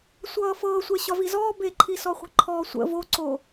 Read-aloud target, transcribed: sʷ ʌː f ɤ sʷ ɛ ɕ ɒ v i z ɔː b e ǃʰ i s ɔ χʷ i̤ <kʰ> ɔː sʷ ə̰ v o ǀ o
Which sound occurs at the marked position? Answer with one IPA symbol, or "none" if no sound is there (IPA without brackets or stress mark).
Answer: ǃʰ